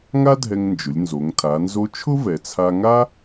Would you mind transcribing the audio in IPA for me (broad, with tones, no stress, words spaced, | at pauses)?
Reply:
ŋa˥dʱɛ˧ŋnd͡ʒʊ˩˧lʲnzo˩˧ŋ tʰa˩˧nzo˧˥ t͡ʃʰʊ˥vɛ˩t͡sʰa˧ŋa˥